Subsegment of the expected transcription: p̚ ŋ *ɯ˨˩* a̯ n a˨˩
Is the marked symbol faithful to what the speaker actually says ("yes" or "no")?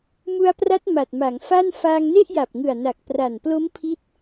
yes